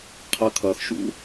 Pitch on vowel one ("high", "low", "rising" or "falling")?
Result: low